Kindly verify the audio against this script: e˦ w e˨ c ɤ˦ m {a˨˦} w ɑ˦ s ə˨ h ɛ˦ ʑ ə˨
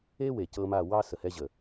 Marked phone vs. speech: incorrect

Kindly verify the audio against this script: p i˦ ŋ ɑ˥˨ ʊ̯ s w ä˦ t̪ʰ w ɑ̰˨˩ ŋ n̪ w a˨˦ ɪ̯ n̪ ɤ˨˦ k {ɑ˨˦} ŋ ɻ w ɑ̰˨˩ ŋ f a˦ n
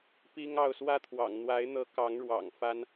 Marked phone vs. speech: correct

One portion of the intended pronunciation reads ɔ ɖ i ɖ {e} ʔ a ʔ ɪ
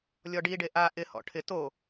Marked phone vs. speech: correct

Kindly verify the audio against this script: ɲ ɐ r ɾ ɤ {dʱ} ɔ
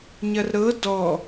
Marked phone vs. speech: incorrect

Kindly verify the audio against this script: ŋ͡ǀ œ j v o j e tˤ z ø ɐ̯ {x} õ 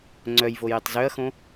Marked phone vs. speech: correct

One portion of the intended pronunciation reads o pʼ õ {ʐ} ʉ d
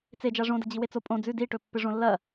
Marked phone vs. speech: incorrect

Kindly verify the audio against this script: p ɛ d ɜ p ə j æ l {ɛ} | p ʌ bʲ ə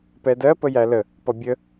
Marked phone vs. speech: incorrect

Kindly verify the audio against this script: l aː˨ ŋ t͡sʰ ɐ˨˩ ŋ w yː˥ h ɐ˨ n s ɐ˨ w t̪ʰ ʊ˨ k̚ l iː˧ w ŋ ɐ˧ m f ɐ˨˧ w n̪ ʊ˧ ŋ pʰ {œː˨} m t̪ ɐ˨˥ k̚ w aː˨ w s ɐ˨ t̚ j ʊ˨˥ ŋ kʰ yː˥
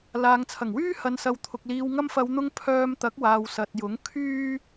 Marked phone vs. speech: incorrect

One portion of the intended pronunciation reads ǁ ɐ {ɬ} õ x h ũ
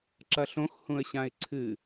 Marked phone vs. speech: correct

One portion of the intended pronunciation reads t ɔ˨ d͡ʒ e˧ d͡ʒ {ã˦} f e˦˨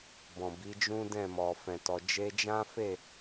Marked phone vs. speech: correct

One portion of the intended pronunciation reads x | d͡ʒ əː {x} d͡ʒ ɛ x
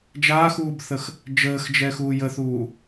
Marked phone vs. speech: correct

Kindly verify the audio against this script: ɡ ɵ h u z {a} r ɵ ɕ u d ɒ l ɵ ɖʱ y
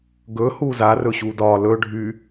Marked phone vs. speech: correct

